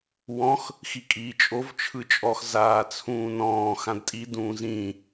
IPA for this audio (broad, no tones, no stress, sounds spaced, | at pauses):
w ɔ̃ x | x i kʼ iː t͡ʃʼ o v t͡ʃʰ ɯ t͡ʃʼ ɔ x z aː t͡sʰ ũː n ɔ̃ː x ã d tʼ i d ũː z ĩ